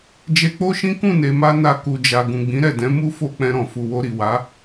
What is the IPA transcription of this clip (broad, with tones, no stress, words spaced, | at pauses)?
d͡ʒe˧k͡po˦ʃĩ˦ kũ˦˨ne˨ma˧ na˧ku˨d͡ʒa˨ ɡũ˨ɡ͡bĩ˨˦ɾɛ˦˨dɛ̃˨˦ mu˦fo˦ k͡pɛ̃˧ɾɔ̃˨ fu˨wo˧ɾi˨ wa˨˦